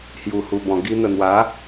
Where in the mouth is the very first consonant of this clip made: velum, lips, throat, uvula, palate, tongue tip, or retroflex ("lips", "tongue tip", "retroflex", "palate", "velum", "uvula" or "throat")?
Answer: throat